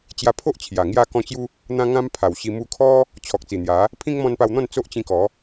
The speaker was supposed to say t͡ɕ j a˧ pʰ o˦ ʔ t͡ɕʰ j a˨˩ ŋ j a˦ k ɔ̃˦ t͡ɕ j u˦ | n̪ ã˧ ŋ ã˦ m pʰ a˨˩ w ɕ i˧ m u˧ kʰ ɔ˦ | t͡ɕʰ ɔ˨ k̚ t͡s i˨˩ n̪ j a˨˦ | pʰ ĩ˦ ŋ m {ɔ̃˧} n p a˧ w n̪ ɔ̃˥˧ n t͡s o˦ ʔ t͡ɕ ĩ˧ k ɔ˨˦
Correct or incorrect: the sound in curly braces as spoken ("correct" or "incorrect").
correct